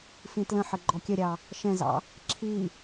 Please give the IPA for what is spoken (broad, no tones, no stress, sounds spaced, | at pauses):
f ĩ t l ə̃ ħ ə ɡ͡ǃ ɔ kʲ ə ɾʲ ɑ | ʃ ɛ̃ z ɑ̰ | ǁʰ i